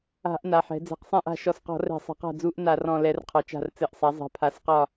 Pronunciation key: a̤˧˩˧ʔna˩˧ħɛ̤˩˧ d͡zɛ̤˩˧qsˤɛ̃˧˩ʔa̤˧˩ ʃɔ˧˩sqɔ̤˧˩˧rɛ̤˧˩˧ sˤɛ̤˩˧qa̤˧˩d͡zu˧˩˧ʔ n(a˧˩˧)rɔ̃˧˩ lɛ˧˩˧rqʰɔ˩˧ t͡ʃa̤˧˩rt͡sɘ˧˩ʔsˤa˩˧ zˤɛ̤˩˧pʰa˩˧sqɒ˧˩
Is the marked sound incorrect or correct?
correct